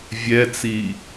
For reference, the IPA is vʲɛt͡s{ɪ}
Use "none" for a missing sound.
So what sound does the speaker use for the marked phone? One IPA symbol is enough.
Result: i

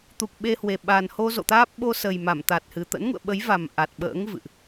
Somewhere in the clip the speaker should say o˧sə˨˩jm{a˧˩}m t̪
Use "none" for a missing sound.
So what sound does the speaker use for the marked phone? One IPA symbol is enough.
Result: a˧˩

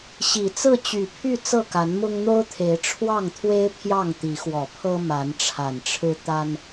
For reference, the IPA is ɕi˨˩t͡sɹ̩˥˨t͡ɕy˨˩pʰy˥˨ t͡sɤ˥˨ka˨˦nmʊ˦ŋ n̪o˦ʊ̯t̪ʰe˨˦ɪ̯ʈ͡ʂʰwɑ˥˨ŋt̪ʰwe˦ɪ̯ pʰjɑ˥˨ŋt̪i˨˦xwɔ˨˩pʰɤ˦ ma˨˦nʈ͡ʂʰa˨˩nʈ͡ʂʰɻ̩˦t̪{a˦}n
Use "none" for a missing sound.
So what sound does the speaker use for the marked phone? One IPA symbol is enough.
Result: a˦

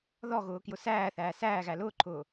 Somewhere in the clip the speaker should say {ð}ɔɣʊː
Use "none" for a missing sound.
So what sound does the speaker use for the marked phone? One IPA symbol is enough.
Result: ð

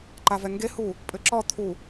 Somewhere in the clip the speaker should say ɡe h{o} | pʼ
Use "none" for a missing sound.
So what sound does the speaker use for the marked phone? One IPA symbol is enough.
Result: u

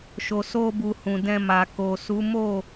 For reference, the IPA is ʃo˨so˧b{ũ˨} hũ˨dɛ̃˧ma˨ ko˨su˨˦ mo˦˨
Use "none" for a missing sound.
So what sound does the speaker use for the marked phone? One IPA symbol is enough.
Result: u˨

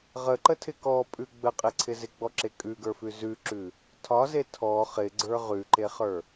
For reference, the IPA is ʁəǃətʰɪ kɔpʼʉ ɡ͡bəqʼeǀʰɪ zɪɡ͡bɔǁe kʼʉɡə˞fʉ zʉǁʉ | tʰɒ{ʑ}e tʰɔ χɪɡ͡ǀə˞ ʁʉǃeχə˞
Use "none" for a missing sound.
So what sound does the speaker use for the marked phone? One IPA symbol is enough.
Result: z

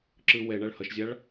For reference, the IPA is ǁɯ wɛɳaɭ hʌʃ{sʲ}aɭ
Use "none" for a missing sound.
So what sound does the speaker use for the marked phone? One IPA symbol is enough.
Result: zʲ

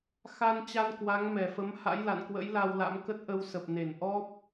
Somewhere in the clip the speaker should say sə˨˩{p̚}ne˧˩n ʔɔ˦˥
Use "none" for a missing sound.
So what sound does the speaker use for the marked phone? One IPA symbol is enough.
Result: p̚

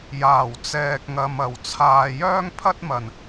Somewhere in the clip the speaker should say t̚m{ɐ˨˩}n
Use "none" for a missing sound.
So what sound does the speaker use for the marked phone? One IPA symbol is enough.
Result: ɐ˨˩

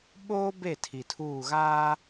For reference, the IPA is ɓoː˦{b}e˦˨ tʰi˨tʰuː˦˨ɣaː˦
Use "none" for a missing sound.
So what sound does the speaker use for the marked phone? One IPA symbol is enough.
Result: b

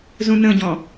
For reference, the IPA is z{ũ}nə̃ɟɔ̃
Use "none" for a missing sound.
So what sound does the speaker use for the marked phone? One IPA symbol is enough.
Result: ũ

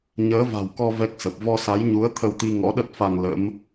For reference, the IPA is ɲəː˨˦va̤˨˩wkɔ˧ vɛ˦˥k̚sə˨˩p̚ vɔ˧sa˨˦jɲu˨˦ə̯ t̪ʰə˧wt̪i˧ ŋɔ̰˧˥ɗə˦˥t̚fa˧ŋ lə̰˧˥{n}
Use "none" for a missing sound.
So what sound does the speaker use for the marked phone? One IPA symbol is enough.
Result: m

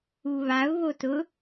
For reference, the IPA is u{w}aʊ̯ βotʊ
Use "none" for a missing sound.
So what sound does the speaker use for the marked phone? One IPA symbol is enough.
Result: β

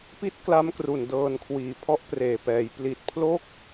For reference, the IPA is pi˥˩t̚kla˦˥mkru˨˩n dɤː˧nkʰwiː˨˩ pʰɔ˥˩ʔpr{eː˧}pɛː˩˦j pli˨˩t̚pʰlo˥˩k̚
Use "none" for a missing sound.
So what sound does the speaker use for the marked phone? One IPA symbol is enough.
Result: eː˨˩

